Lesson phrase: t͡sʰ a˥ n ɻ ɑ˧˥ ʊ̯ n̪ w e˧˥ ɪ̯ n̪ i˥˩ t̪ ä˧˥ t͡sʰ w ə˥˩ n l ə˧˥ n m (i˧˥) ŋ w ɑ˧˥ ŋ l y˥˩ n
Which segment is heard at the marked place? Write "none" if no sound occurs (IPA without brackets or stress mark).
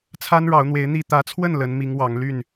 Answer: i˧˥